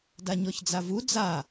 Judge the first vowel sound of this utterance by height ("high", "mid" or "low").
low